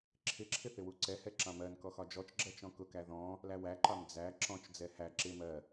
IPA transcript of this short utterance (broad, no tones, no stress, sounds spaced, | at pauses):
ǁʰ ɪ ǁʰ ɪ θ ɪ w u ǀ ɛ h ɛ ǁ ɑ̃ m ɜ n k ɔ x ɒ d͡ʒ ɔ t͡ʃ ɡ͡ǁ ɜ t͡ʃ ɔ̃ k ʊ k æ ð ɔ̃ | l æ w æ ǃ ɑ m d͡z æ ǁ ɔ̃ t͡ʃ d͡z ɛ h æ ǁ ɪ m ɜ